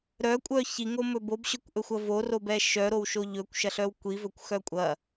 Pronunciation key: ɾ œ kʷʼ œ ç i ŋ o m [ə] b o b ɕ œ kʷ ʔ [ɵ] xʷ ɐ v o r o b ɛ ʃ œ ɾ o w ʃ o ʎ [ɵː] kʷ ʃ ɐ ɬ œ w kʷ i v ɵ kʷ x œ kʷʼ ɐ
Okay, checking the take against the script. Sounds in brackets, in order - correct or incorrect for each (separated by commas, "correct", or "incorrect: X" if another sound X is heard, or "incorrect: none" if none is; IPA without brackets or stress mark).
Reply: incorrect: ɵ, correct, incorrect: ɵ